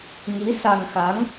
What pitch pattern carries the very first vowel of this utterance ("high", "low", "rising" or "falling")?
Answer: rising